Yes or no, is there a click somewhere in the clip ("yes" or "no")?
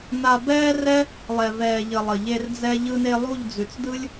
no